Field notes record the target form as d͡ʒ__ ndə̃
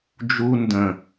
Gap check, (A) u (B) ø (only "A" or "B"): A